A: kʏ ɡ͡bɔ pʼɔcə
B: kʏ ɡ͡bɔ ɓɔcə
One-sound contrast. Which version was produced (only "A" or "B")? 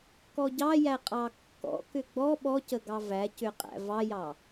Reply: B